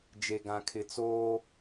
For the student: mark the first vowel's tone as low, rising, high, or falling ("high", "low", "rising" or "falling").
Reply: low